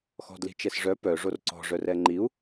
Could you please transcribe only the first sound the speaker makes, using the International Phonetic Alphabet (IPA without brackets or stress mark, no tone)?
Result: x